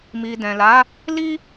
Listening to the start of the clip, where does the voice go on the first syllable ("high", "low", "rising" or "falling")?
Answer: low